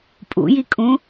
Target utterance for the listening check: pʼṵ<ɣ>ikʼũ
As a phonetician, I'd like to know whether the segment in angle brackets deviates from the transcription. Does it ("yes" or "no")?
yes